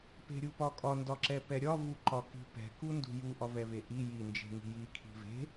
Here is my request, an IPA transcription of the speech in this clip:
p e̤ ɾʲ u p ɒ kʼ ɒ n d ɒ ǁ ɛ p ɛ ɾʲ ɒ v u ǃ ɒ k i̤ p ɛ̤ k u n d ṳ j u ʔ ɒ v ɛ v e ʔ i j i n d͡ʒ e̤ ŋ i̤ j i kʰ i̤ v e̤

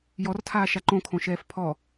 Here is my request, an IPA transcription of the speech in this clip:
j ɔ r tʰ aː ʃ a ǃ õ kʰ õ ʃ ɛː f pʰ ɔ

